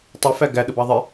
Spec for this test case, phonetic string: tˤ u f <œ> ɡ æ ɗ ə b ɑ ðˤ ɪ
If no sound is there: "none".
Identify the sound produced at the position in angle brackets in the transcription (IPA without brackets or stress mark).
æ